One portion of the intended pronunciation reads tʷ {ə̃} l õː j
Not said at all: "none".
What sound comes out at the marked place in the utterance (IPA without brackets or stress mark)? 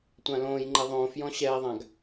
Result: ã